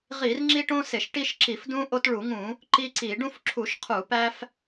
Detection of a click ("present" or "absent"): present